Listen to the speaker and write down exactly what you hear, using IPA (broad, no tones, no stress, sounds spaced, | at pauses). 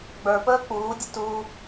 ɡ͡b ə˞ p əː k͡p uː dʲ ə t u